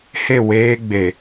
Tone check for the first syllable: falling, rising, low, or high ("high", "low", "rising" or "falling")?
falling